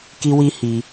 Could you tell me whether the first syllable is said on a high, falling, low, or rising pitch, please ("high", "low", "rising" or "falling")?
high